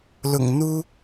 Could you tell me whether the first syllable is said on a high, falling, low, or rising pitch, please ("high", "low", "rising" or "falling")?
low